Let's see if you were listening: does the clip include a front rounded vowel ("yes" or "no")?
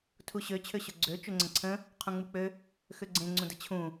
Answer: yes